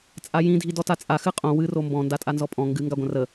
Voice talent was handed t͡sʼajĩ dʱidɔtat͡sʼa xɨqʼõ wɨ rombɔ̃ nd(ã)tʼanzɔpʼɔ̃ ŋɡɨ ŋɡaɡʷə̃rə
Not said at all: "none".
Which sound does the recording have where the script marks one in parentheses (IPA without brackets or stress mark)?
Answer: a